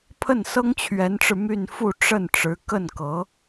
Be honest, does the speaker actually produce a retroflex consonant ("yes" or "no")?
yes